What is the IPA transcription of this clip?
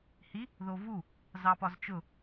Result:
h i | ð o v u | z ɑ p ɒ z t͡ʃ ʊ

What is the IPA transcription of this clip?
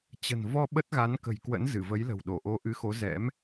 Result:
t͡ɕ ə̤˨˩ n v ɔ˧ ɓ ə˦˥ t̚ ɣ a˨˦ n k ə̤˨˩ j k w ə̰˧˥ n z ɨ˧˩ v ə˨˦ j l ə̤˨˩ w ɗ o˧˩ ʔ o˨˦ ʔ ɨ˨˦ x o˨˦ z ɛ̰˧˥ m

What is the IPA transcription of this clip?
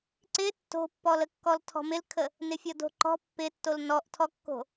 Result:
ǀ ɪ tː o̤ pː ɔ l ə kː ɔ l tʰ ɔ̤ m ɪ l kʰ ə | n ɪ fʲ ɔ d o̤ ǃ ɔ̤ pː ɪ tː o l n ɔ ʔ tʰ ɔ kː o̤

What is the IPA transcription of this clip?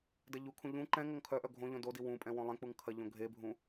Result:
d ɐ ʎ u kʰ ũ ʎ ũ ǃ ɛ̃ ŋ o ŋ kʰ œ ʔ œ ɡʱ õ ʎ õ d o d i w ũ pʼ ɛ̃ w õ lˠ ẽ k͡p u ŋ kʰ ɐ ʎ õ ɡʱ e bʱ ũ

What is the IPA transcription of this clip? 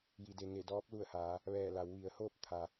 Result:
j i˩ d e˩ ŋ e˧˩ d ɔː˧˥ p̚ l u˧˩ ə̯ h aː˩˧ | ʋ ɛː˧˩ l a˩˧ w ʋ i˩˧ ə̯ h oː˥˨ p̚ t̪ʰ a˩

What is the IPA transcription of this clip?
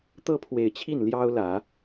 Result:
t̪ ɤ˥ pʰ w e˨˩ ɪ̯ t͡ɕʰ i˥˩ n l j ɑ˥ ʊ̯ l ä˨˩˦

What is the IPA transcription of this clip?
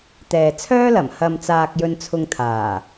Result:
t̪ ɛː˨ t͡sʰ œː˥ l ɐ˨˩ m h ɐ˨ m t͡s aː˧ k̚ j ɵ˧ n t͡sʰ ʊ˧ ŋ t̪ʰ aː˨˩

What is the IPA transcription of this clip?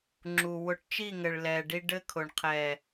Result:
ŋ͡ǁ u˨ w ʊ˨ ʈ t͡ʃ i˦˨ ŋ ɘ˨ ɭ l ɛː˨ ɖ i˦ ɖ ɘ˦ kʰ ʊ˨ ɳ qʰ ɛː˨

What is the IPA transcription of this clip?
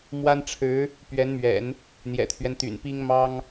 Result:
m w a˥ n ʈ͡ʂʰ ɻ̩˧˥ | p ɥ ɛ˧˥ n m ɥ ɛ̰˨˩˦ n | n̪ j ɛ̰˨˩ t̪ʰ ɥ ɛ˦ n t̪ y̰˨˩ n p i˥ ŋ m ɑ˥ ŋ

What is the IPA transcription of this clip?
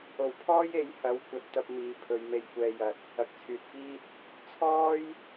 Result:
o˨˩ w pʰ ɔː˥ j e˨˥ j h ɐ˨˥ w kʷ ɐ˨ t̚ t̪ ɐ˧ p̚ m iː˨ pʰ ɵ˨ ɥ m e˧ j kʷ ɛː˧ j ɐ˨ t̚ | ɐ˨ k̚ t͡sʰ yː˨ t̚ f iː˥ t̚ | t͡sʰ ɔː˥ j

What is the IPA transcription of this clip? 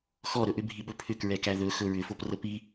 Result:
x ɔ ɾ ɵ ʔ ʏ bʱ i ɓ ɵ pʰ ʏ k ɹ ɛ k æ ð ɵ x ɵ ɹ ʏ f o p r ə p i

